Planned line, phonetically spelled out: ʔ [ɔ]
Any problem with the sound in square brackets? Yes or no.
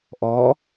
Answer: no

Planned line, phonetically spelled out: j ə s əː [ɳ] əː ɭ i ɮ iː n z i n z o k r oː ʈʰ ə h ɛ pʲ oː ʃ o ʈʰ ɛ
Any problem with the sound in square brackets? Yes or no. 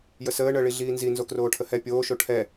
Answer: no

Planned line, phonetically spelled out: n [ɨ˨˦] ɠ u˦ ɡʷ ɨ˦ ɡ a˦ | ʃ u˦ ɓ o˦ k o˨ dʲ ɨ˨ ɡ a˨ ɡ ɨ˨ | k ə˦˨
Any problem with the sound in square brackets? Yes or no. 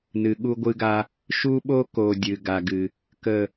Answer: yes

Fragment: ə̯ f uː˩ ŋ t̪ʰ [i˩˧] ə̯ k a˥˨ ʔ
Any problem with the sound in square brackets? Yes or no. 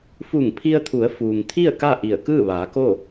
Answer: yes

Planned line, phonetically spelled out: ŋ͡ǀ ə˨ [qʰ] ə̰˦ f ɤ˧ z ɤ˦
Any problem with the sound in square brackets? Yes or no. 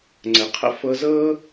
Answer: no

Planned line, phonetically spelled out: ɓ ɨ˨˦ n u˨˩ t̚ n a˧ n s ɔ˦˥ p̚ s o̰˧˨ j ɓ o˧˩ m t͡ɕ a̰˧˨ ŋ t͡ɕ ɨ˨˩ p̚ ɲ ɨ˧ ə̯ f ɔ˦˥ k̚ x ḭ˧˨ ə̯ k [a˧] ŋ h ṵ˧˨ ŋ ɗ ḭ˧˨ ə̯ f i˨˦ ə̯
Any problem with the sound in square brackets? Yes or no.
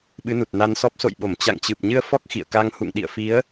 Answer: no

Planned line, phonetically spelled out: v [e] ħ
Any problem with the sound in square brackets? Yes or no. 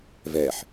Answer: yes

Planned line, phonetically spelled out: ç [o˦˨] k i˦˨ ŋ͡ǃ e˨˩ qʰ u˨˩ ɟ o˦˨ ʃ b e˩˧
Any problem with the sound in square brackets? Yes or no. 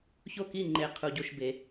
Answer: no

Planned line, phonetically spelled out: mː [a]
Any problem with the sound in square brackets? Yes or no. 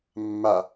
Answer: no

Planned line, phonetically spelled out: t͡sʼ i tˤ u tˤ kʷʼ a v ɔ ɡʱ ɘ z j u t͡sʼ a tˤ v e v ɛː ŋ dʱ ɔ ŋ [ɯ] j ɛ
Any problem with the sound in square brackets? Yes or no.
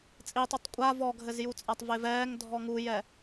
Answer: yes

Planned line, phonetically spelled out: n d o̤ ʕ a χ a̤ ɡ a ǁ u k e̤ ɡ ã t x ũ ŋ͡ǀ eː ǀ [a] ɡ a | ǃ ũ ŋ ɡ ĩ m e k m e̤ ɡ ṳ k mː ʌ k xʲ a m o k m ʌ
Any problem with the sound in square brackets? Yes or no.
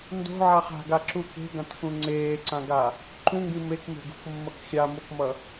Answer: yes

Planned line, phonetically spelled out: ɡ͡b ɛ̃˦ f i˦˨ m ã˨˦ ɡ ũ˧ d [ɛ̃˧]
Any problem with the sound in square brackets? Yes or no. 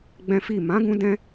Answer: no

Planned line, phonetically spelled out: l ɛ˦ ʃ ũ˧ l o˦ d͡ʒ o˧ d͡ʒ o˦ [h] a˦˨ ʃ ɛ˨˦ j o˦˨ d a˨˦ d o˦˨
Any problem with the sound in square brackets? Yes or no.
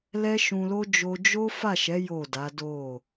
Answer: yes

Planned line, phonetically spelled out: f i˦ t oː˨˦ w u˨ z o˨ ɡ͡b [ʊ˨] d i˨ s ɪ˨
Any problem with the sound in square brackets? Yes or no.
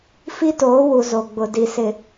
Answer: no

